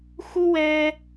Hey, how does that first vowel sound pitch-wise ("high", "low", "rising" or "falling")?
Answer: high